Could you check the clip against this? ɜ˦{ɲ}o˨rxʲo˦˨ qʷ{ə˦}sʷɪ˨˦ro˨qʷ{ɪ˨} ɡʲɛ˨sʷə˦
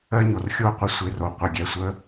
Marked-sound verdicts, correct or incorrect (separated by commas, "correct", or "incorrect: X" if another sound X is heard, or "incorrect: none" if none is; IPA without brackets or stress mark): correct, incorrect: ɪ˦, correct